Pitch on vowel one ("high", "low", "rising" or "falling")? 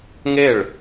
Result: falling